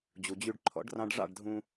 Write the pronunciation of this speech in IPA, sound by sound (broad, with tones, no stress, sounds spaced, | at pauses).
d͡ʑ u˨ d͡ʑ y˧ ɖ ǃʰ ɔ̰˨˦ ɖ r ɑ̃˧ ɖ ʐ ɑ̰˦˨ ɖ dʱ ũ˧